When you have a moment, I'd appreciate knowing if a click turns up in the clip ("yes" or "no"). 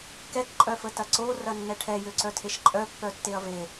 yes